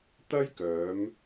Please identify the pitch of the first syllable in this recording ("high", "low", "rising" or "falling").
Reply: high